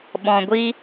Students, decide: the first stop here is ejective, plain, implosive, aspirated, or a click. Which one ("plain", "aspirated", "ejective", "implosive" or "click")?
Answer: implosive